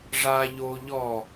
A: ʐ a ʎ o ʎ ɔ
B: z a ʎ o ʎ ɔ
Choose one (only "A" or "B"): A